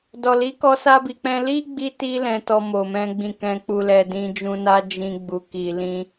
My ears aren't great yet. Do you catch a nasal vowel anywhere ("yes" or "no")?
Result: yes